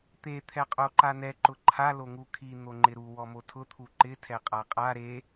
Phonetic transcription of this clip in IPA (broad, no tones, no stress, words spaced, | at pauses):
t̪e t̪ʰɛqʼoǃanɛ ǃʊǃʰa loŋukʰi n̪oŋ͡ǃɪɾu wɔmotʰʊ t̪ʰuǃɪ tʰɛqʼaqʼa ɾe